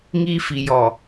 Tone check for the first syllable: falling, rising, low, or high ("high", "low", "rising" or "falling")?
high